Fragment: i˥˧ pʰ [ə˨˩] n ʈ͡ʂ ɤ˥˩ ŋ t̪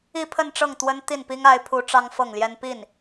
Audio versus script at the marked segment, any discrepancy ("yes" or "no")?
yes